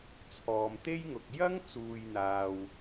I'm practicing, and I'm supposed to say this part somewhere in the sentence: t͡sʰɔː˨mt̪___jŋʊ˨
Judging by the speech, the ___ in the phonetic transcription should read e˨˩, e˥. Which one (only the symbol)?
e˥